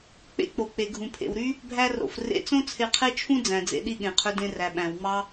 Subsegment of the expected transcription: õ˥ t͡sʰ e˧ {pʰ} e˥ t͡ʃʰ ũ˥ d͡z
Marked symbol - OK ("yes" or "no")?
no